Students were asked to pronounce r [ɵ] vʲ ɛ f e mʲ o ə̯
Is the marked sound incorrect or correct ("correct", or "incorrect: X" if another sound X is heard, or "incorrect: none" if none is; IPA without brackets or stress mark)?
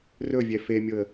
correct